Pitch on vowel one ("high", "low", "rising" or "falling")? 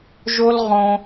high